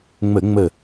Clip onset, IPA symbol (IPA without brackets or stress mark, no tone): ŋ͡m